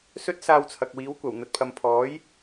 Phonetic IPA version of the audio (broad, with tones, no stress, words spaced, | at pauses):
sɵ˥t̚saː˧wt͡sʰɐ˨k̚ wiː˨˥wkʷɐ˨˩w n̪ɐ˨t̚pʰɐ˨m pʰɔː˨˥j